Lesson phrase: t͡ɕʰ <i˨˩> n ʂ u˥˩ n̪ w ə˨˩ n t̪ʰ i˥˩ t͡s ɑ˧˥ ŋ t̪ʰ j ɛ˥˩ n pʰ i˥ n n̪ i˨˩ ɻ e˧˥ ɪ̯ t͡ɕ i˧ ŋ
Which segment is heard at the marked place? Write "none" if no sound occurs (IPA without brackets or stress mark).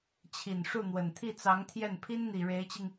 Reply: i˨˩